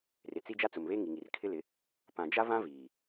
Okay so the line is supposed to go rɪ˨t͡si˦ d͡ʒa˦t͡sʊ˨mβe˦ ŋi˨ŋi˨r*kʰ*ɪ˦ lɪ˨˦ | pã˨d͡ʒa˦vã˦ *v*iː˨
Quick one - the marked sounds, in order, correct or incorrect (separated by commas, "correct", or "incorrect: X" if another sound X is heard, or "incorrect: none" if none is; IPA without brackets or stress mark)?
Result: correct, correct